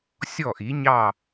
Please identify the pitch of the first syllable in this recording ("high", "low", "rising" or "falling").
falling